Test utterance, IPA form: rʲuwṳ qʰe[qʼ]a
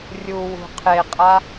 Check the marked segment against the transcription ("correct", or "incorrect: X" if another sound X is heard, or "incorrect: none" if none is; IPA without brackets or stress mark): correct